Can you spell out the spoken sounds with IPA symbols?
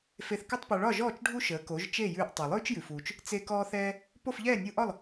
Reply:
fe˧θkʉ˥tˤpɒ˧ ɭɒ˥˩ʒɔː˥˩t͡ʃ ɖʱu˥ʃəː˩˥ ko˩˥ʒ t͡ʃe˥˩jʉː˧ʔ tˤɛ˩lˠʉː˥t͡ʃjʉ˩fuː˩t͡ʃ | t͡se˧ kɔː˧θɛː˧ | po˥˩fʎɛː˥˩nʲu˧ʔɒ˥˩lˠ

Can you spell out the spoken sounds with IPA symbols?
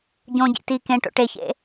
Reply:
ɟõɟḭ ti kẽʈo̰ ʈeçḛ

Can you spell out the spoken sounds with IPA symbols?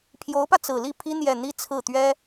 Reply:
pʰjo˧˥ʊ̯pä˧ t͡sɹ̩˨˩li˥˩pʰi˥ n̪jɛ˥˩ n̪i˥ t͡sʰɹ̩˥˩ t̪ɥɛ˥

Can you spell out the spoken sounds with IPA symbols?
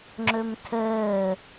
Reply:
ŋ͡ǁɵmtʰəː

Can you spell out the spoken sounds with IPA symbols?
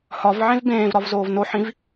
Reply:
hɒvʕẽv bẽːvɾɒvzoːv noħĩv

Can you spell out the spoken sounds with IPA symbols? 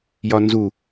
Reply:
jɒnzu

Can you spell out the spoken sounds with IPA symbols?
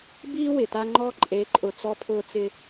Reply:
biː˦ wɪ˨ta˦ ŋ͡ǃɔ˦ ǃʼe˨˦ǃʼʊ˨ t͡sɔ˦pʰʊː˦t͡sɪ˦

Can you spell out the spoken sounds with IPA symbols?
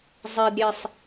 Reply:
zˤedɾʲesˤ

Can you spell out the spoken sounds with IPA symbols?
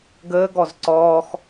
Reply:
ɡəːɡɔz ǀɔːx

